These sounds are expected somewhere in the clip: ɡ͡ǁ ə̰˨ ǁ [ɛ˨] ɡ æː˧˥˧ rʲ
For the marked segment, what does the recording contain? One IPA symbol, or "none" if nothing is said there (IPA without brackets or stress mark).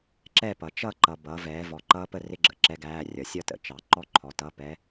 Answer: ɛ˦˥